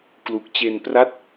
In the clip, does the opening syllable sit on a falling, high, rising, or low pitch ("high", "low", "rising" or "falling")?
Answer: low